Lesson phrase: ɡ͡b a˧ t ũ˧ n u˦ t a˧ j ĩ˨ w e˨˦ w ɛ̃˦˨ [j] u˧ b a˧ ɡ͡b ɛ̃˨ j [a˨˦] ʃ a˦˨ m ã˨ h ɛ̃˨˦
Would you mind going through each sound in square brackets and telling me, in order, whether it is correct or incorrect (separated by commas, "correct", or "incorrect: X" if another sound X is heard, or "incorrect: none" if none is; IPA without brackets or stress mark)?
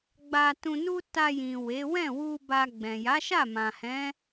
incorrect: w, correct